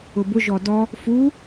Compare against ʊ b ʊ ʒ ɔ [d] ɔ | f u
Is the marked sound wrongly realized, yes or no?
no